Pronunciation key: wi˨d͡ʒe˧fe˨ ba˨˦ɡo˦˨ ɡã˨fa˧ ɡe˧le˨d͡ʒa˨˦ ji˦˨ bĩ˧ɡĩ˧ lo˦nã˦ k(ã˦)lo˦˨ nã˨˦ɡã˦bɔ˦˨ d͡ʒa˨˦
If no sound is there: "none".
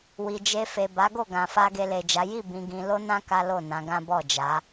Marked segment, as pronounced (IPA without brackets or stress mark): a˦